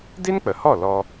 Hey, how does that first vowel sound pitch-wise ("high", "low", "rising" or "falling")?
high